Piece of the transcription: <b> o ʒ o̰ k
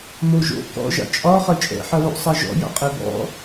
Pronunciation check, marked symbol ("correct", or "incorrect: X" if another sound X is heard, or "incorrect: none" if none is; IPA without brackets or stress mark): incorrect: m